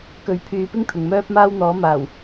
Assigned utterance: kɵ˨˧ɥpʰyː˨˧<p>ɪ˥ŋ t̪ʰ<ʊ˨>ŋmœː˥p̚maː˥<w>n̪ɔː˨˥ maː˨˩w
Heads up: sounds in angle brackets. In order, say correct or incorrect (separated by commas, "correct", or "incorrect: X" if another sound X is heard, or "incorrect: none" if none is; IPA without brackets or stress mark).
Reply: correct, correct, correct